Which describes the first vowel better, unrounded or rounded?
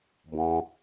rounded